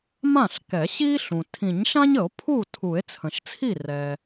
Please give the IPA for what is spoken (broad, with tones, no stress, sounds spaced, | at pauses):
m ã˥˩ ɬ k ɛ˨˩˦ ɕ i˥ ɬ ũ˩ tʰ ĩ˨˩˦ ɲ ʃ ã˥ ɲ ə˨˩˦ o̯ pʰ u˥˩ tʰ u˨˩˦ e̯ t͡sʰ ə̃˩ ʃ t͡sʰ i˥˩ r ɛ˩